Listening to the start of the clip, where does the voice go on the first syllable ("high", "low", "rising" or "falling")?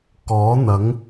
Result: rising